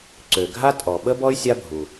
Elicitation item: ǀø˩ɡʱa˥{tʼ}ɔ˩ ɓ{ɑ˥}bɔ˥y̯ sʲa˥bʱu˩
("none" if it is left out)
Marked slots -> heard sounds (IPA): tʼ, ə˥

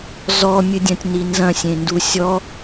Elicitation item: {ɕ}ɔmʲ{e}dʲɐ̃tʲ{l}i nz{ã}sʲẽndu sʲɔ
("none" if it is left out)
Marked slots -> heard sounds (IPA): z, ɨ, n, ɐ̃

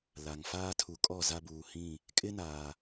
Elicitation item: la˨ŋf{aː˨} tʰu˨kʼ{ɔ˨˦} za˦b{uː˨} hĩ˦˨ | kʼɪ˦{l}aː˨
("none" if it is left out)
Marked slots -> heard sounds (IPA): aː˦, ɔ˦˨, uː˨, n

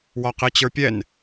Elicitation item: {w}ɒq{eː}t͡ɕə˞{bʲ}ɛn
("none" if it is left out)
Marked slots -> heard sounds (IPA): w, e, pʲ

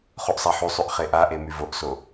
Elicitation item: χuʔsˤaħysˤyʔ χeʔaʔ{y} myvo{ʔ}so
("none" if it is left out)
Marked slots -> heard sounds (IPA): e, ʔ

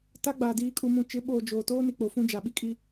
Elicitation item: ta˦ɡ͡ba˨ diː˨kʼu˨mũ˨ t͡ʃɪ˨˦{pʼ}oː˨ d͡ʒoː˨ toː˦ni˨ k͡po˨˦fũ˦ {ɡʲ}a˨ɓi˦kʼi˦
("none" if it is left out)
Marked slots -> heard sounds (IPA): ɓ, d͡ʒ

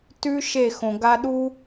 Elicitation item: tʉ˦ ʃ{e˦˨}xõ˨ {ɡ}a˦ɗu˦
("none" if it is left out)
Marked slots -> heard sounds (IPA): e˦˨, ɡ

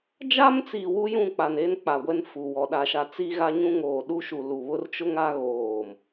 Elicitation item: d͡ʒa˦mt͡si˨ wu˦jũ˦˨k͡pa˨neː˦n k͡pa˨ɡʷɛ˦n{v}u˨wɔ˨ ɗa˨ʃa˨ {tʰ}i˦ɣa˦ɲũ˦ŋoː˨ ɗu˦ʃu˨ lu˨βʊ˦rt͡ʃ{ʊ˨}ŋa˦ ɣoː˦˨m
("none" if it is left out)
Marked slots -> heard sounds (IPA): f, t͡s, ʊ˦

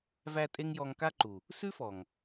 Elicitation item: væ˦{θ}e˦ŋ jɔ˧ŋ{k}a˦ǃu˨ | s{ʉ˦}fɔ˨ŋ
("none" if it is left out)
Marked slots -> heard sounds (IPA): tʼ, k, ʉ˦

